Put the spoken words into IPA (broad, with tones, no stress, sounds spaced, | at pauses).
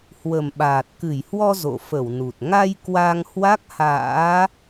h w ə˨˩ m ɓ aː˨˩ t̚ k ɨ˧˩ j h w ɔ˧ z o̰˧˨ f ə˧˩ w n u˨˩ t̚ ŋ a˧ j k w a˧ ŋ h w a˦˥ k̚ h a̰ː˧˥